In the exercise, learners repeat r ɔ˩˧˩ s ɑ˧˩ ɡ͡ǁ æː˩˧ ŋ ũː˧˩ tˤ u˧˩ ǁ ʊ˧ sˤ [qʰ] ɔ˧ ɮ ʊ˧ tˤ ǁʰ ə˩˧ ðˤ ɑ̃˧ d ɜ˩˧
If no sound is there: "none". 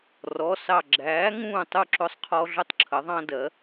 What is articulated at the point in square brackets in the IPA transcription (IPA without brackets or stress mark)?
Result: qʰ